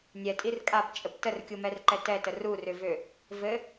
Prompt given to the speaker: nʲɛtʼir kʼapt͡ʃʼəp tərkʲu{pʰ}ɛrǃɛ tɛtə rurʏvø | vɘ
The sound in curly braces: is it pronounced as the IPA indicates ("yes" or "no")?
no